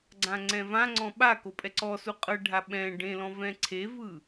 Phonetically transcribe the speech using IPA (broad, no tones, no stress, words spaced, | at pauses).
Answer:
ɡ͡ǀãŋ͡ǀɛ̃vãŋ͡ǀɔ̃ ɓako pʼɛǀɔsu qʼɤɖʱa ɓɛ̃ ɖẽlɔ̃ vɛ̃ǀʰevɯ